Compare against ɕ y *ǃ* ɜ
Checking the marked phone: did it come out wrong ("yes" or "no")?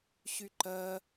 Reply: no